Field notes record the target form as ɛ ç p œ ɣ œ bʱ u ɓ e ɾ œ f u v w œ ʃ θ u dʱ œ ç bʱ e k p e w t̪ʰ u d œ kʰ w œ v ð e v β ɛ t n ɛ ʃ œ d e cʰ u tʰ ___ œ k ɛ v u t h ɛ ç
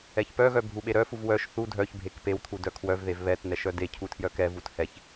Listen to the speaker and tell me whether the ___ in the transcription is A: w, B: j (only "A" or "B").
B